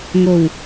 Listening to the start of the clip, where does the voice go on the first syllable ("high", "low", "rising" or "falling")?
low